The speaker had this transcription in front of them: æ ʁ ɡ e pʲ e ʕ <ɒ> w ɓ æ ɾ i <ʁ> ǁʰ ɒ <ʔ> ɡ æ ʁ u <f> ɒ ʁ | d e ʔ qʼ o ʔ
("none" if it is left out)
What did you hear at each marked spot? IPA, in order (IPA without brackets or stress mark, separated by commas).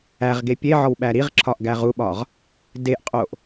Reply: ɒ, ʁ, ʔ, ɓ